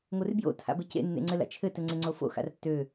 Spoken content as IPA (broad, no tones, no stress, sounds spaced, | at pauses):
ŋʷ ɘ r b j o̰ tʰ a̰ b e c ḛ nː ḛ ŋ͡ǀ ɘ l a̰ t͡ʃʰ ɘ t ɘ ŋ͡ǀ e ŋ͡ǀ o f o̰ x a̰ r tː ø